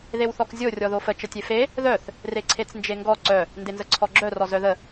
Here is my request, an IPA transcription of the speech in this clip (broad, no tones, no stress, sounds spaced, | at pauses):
ð e w θ ɔ k zʲ o rʲ ɔ ð o f ə t͡ʃ ə tʲ e f e | ð œ θ | r e ǀʰ e t͡s n d͡ʒ e ŋ ɡ ɔ ǀ œ | n d e n z ə ǀʰ ɔ ɡ͡ǁ œ r ɔ z œ ð ə